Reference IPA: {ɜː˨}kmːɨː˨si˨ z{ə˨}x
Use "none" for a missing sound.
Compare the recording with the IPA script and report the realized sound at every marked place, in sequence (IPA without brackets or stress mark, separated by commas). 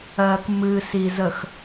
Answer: ɜː˨, ə˨